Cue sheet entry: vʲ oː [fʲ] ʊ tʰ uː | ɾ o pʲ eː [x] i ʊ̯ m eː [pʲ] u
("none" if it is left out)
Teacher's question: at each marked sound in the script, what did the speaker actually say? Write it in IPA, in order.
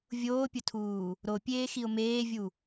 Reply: pʲ, x, vʲ

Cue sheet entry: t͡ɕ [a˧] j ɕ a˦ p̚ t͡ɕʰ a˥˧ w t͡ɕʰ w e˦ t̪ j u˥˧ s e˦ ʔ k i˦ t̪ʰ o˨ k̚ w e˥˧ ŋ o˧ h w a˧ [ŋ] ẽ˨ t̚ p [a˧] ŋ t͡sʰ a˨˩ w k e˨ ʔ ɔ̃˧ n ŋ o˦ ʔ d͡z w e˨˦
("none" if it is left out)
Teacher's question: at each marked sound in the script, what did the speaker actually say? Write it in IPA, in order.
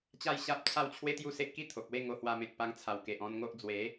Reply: a˥˧, m, a˧

